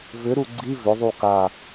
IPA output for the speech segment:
v ʏ ɾ u ɡ͡ǀ i v ʏ ðˤ u k a

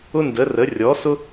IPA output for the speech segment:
ʊ˥ n d ə˧˥ r ə˧˥ rʲ ɔ˧˥ s ʊ˥

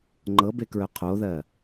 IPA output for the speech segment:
ŋ͡ǃ ɤ b e k ɹ œ qʰ o ð ɜ

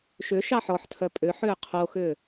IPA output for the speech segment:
ʃ ʏ ʃ ɑ ħ ɔ ħ tʰ œ pʼ ʏ ħ ʏː qʰ o x ʏː

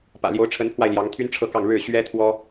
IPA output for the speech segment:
p ä̰˨˩ l j o˧˥ ʊ̯ ʈ͡ʂʰ ə˧˥ n pʰ w a˧ ɪ̯ l j ɑ˧˥ ŋ t̪ʰ y˥ n ʈ͡ʂʰ ɤ˥˧ k ɑ˥˧ ŋ ɻ ɻ̩˥˩ ɕ ɥ ɛ˥ t̪ʰ w ɔ˥

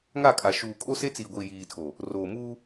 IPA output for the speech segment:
ŋ a˦˨ kʼ a˨ ʃ uː˨ kʼ o˦ s e˦ t͡s iː˨ ɡʷ i˨ j iː˨ tʰ o˨ | r oː˨ m uː˦

